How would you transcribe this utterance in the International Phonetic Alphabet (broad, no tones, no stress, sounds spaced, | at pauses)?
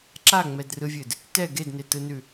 ǁ a ŋ͡m ɛ d r ɯ vʲ ɨ d | t ɛ ɡ e d n e t ɯ n ʉ